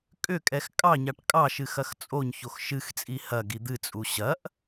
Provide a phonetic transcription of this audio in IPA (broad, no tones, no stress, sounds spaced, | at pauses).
kʼ ʏ kʼ ɛ x kʼ ɑ ɲ ɑ ʈ kʼ ɑ ʃ ɨ x ɐ x t͡sʼ o ɲ ç o x ʃ ɨ x t͡sʼ i h ɐ ɡ i d̪ ɨ t͡sʼ u ɕ ɐ ʔ